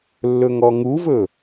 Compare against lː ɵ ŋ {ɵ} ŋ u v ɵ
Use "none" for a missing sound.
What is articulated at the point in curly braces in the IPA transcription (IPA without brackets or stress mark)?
ɔ